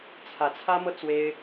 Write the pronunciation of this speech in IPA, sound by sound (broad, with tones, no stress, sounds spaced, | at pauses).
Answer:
t͡sʰ ä˧˥ t͡sʰ ä˥ m ɤ˥ t͡s w e˥ ɪ̯